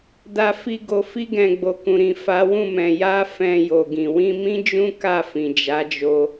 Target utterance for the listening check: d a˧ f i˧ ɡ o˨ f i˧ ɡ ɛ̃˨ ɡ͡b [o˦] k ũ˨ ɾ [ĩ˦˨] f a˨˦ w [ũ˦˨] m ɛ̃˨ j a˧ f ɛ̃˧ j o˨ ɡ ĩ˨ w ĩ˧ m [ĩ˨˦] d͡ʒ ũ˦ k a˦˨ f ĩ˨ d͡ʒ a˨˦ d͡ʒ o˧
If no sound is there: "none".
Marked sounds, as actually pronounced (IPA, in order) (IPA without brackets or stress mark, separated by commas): o˨, ĩ˨, ũ˦˨, ĩ˦